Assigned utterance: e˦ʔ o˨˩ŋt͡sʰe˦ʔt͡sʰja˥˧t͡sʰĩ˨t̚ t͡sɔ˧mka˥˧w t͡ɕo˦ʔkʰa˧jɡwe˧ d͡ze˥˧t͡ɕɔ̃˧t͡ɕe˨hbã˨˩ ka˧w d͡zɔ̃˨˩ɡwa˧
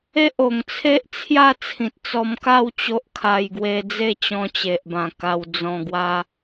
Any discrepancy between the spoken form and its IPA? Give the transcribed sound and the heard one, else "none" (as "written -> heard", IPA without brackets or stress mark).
h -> ʔ